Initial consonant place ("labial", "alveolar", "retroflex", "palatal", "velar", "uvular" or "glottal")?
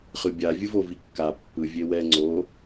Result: uvular